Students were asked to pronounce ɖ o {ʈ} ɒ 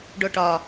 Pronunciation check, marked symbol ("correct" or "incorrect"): correct